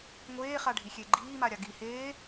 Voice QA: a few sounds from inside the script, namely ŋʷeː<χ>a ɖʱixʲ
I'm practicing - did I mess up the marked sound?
no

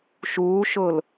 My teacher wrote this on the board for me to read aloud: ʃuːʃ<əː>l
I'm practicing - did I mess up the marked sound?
yes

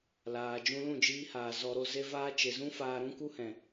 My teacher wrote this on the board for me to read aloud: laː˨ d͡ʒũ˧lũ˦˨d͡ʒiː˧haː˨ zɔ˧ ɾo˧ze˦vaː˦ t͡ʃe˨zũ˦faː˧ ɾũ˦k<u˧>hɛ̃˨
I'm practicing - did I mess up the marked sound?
yes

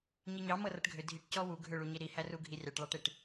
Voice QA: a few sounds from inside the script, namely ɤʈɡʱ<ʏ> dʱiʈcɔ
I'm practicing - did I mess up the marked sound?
no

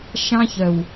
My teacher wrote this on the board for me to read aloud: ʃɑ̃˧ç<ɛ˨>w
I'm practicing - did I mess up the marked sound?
yes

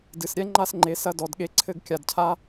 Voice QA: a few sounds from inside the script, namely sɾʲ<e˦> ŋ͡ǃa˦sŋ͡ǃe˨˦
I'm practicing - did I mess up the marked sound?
yes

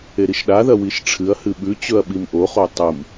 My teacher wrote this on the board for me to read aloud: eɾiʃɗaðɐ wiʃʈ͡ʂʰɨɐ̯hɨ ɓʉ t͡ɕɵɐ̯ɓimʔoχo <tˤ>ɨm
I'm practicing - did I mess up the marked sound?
no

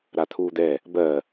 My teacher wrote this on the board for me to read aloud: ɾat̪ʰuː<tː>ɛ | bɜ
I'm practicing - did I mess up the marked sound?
yes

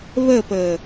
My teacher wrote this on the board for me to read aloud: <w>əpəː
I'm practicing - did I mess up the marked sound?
yes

